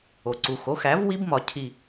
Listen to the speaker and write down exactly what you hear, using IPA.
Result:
o˨ ǀ u˨ x o˩˥ x æ˩˥ v w i˦ b m ɒ˨ cʰ i˦˨

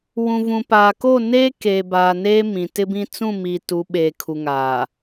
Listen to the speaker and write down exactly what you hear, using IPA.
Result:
w ũ˨ v ũ˨ p aː˨ k o˦˨ n eː˦ k eː˨ b aː˨ n eː˦ m ĩ˨ t ɪ˦ b ĩ˦ t͡s ũ˦˨ m i˨ t u˨˦ ɓ eː˨ kʰ u˨ ŋ aː˨

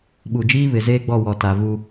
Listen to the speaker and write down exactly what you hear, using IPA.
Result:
ɓ u˨ d͡ʒ iː˦ β ɪ˨ z eː˦ ɡ͡b ɔ˦˨ w ɔ˨ t a˨ v u˦

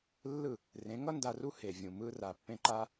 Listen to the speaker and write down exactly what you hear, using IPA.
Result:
lː ɯ˦˨ | r ẽ˨˦ ŋ ʌ˦ n d a˧ r u˦ h e˨ vʲ ũ˨ m ɯ˧ r a˨ pː ẽ˧ ǃ a˧

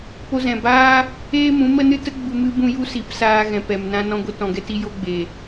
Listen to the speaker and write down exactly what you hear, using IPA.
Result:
p o˧ z ɛ̃˨ b aː˦ | eː˦ m ũ˨˦ m ə˦ n ɨ˦ t ə˦ ɡ͡b u˧ m ɨ˦ b ũ˦ j u˦ s i˨˦ p s aː˧ ɣ ɛ̃˨ p ɛ˨ m n ã˧ n ɔ̃˧ ɡʷ ə˧ t ɔ̃˨ ɡ ɛ˧ t i˧ j o˧ ɡ͡b e˨

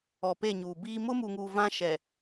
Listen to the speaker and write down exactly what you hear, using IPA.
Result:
ɔ˨ p e˦˨ ɲ uː˨ b iː˦ m ʊ˦ m u˨ ŋ uː˨ v ã˦ ʃ ɛ˨

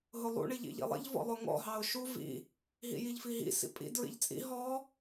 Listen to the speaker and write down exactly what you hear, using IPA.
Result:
ɦ ʊ lˠ ṵ ɳ i ʎ ḭ ʎ ḭ lˠ ḭ ʎ v ɔ̰ lˠ ʊ ŋ ɔ̰ ɦ ɑ ʊ̯ ʃ u v ḭ | ɦ ḭ j i ʎ f i ɦ ḭ s ḭ pʼ ḭ d ɹ ḭ ʎ t͡sʼ ḭ ɦ ɔ

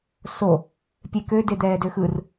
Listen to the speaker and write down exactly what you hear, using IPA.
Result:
s o | pʲ e k ø d e d̪ ɛː d ø x ɯ r

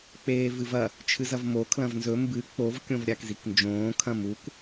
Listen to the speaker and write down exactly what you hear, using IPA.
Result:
k͡p eː v ɨ v ɐ | t͡ʃʰ ɨ z ɐ v m o kʰ l ɐ̃ v n z ɵ m b ɨ k͡p o v kʲ õ v ɾʲ a k z i k n d͡ʒ õː kʰ ɐ̃ m u k

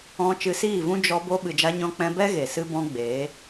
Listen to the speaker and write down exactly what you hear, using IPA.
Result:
ɔ̃˧ t͡ʃ ɨ˧ s iː˦˨ v ũ˦ d͡ʒ ɔ˧ b o˧ ɓ ɨ˨ d͡ʒ a˧ ɲ ɔ̃˧ k͡p ɛ̃˧ b ɛ˦ ɣ e˨ s ɨ˦ b ɔ̃˦ ɡ͡b eː˨˦

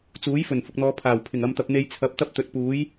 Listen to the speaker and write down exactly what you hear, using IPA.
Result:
t͡s uː˨˥ j f ɵ˨˩ n f ʊ˨ k̚ n̪ ɔː˨˧ pʰ aː˨˩ w pʰ ɪ˨˩ ŋ ɐ˨ m t̪ ɐ˨ p̚ n̪ e˧ j t͡sʰ ɐ˨˥ p̚ t̪ ɐ˥ p̚ t̪ ɵ˨˥ t̚ p uː˨˥ j

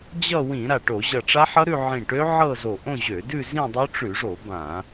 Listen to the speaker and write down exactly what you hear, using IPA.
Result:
d͡ʑ ʌ˥˧ w ĩ˧˩˧ ɾ a˧˩ ʈ o˧˩˧ ʑ ʌ˧˩ ʈ͡ʂ a˦˥ ħ ʌ˦˥ ɾ ʉ˥˧ ʕ ĩ˧˩ ʈ ø˦˥ ʕ ɤ˥˧ z o˧˩ ʔ õ˥˧ ʑ ø˧˩˧ d ʉ˥˧ z ĩ˥˧ dˤ o˦˥ ʈ͡ʂ ʉ˧˩˧ ʐ o˧˩˧ b ã˧˩˧

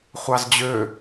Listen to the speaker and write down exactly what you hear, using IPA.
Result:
χʷ ɑ z d͡ʑ ø

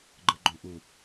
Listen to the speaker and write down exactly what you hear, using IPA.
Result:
ɡ͡ǃ ɯ ɡ͡ǃ õ ʔ u

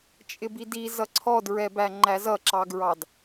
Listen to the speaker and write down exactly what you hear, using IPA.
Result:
t͡ʃʼ ɪ b i d i z ʌ ǀʰ ɔ d ɹ ɛ b æ ŋ͡ǃ æ z ʌ ǁ ɑ ɡ ɹ ɑ d

